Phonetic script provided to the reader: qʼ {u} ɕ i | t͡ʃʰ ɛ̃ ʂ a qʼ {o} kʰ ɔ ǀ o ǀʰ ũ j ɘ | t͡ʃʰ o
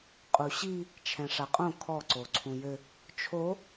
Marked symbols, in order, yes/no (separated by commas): yes, no